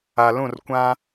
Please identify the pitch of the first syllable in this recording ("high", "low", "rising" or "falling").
low